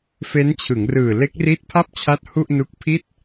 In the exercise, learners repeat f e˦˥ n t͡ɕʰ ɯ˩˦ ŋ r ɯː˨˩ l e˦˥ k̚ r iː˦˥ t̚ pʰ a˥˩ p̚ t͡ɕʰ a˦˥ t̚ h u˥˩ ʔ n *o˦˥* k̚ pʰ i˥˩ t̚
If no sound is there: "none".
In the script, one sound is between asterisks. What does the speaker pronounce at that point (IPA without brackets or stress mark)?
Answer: u˦˥